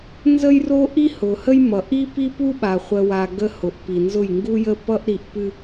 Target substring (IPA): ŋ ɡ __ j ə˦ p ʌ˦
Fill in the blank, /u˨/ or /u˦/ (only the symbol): u˦